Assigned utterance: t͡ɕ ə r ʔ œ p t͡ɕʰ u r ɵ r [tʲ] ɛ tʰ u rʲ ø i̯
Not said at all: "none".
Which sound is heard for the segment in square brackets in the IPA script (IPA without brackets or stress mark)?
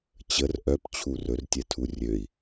tʲ